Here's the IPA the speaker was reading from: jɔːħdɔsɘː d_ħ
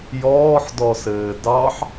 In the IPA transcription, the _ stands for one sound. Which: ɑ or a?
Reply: ɑ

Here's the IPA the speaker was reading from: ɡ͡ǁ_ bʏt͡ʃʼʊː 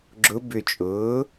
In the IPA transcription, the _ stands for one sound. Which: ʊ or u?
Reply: ʊ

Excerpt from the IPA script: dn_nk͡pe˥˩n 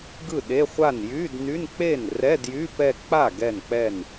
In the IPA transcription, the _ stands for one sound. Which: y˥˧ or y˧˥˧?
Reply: y˧˥˧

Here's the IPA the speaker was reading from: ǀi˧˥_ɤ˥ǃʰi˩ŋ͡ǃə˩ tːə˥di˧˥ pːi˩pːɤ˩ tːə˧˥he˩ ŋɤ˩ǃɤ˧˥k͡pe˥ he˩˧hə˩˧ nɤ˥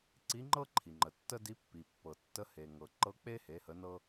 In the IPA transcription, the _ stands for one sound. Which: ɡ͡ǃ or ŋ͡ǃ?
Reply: ŋ͡ǃ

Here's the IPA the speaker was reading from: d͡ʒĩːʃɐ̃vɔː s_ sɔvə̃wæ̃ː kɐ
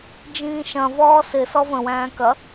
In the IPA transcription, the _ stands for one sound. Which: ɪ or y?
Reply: ɪ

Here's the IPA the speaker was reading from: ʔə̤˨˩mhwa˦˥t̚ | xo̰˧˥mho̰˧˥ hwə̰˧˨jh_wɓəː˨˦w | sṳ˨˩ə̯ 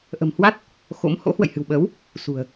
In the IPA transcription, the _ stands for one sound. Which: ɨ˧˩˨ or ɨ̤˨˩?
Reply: ɨ̤˨˩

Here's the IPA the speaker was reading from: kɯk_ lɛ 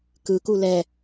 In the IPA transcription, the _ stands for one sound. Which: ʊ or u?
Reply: u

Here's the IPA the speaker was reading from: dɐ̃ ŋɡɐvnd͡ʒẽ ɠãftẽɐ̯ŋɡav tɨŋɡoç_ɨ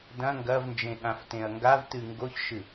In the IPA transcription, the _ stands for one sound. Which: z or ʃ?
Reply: ʃ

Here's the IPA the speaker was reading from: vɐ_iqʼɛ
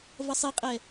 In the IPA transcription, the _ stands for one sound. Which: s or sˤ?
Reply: sˤ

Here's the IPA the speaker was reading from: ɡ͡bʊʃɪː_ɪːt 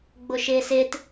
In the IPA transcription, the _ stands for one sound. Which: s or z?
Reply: s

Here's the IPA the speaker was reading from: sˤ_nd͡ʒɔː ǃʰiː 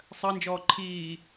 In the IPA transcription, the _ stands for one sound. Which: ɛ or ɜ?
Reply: ɜ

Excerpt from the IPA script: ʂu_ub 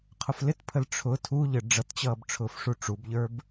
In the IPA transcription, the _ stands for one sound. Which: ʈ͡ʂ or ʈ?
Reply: ʈ͡ʂ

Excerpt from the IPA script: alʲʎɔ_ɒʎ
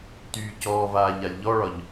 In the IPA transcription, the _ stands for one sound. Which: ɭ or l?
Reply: ɭ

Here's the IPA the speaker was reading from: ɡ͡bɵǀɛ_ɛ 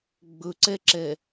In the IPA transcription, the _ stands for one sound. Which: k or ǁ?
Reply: ǁ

